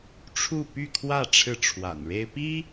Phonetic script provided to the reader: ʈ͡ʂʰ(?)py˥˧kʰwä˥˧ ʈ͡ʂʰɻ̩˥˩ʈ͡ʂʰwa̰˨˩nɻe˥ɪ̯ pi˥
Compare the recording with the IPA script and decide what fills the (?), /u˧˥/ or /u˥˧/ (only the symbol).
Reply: u˥˧